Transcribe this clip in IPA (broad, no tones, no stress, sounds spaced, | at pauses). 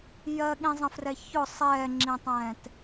j ɜ ɠ ĩ zˤ ə̃ f r ɛ ç ʊ sˤ ɛː ŋ͡ǁ ĩ tˤ ɛ̃ː t